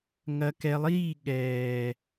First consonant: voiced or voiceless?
voiced